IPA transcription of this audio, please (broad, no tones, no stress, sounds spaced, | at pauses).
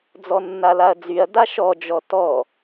d͡z ɔ nː a l a ɐ̯ d͡z y ɐ̯ d a ʃ ɔ d͡ʒ ɔ t ɔ